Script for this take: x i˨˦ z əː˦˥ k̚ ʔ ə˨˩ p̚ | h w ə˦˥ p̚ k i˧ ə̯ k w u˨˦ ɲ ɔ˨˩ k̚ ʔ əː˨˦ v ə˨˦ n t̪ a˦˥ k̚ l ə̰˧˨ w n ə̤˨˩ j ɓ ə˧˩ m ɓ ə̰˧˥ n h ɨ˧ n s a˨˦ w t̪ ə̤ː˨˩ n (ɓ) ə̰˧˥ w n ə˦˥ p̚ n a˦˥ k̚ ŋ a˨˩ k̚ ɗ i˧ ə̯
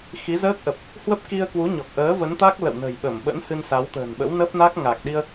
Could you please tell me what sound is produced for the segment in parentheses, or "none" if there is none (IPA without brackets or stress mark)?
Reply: ɓ